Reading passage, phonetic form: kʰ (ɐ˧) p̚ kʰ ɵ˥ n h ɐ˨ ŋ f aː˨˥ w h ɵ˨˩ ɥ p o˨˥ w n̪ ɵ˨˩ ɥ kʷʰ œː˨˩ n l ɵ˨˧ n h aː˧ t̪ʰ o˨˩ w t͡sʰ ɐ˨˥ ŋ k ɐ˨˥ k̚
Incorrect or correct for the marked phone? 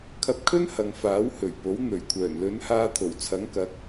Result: correct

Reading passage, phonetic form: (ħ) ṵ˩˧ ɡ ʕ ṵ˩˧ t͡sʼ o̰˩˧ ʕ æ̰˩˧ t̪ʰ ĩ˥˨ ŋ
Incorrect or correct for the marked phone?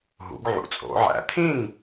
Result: incorrect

